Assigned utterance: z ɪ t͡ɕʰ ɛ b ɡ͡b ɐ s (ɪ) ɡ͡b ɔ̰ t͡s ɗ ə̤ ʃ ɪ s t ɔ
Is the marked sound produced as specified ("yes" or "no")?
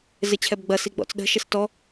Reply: no